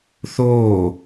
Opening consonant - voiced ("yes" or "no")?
no